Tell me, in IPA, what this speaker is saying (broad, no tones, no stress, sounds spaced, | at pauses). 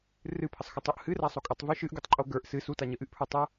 r ɨ pʰ ə sˤ x o tˤ o ʔ h ɨ r a sˤ o kʼ o tˤ v ɨ ʃ ɨ ʔ ɡ u tˤ ǃʼ o ɡ ə˞ ʔ s ɨ s u t a ɲ ə ʔ ɨ ʔ pʰ ə˞ tˤ ə˞